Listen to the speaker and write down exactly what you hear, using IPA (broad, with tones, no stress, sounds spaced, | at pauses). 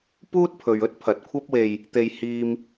p uː˥ t̚ pʰ ɵ˨ ɥ ɵ˥ t̚ pʰ ɐ˨ t̚ kʷʰ ɐ˥ p̚ w e˧ j | t̪ e˧ j h iː˧ m